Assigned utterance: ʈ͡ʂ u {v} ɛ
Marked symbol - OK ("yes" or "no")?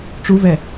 yes